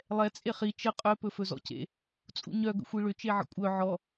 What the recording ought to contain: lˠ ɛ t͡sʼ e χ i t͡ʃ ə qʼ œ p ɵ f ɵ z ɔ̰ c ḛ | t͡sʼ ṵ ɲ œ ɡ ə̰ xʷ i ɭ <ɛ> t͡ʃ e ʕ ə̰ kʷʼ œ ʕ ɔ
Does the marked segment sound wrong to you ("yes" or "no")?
yes